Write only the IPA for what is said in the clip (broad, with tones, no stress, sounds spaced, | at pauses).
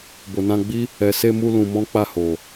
b o˨ n ã˧ ɡ͡b i˦ | ɛ˨ s e˧ m u˧ l ũ˧ m ɔ̃˦ k͡p a˦˨ h o˨